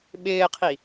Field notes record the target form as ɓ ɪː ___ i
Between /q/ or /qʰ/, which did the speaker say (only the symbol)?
qʰ